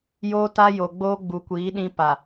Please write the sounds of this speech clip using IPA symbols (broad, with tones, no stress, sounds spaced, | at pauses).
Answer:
j oː˦ t a˦ j o˨ ɡ͡b oː˦ ɡ͡b u˨ kʷ iː˨˦ ɗ ĩ˦ p a˨